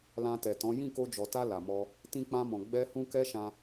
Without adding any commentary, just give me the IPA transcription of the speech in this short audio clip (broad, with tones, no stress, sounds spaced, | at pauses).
l ã˧ t ɛ˨ t ɔ̃˨˦ j ĩ˦˨ k o˧ d͡ʒ ɔ˨ t a˧ l a˨ m ɔ˧ | t ĩ˧ k͡p ã˧ m ɔ̃˨ ɡ͡b ɛ˧ h ũ˧ k ɛ˦ ʃ ã˧